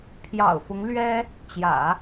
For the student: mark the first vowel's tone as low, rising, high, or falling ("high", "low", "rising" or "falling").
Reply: low